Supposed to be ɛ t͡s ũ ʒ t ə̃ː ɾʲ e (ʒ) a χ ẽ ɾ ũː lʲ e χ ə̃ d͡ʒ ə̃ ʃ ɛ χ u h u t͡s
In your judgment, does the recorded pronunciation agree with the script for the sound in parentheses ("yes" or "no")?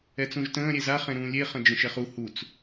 no